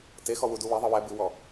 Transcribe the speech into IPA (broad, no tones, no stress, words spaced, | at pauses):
texɔ wuduweðˤɨ wɛ bɨwɔ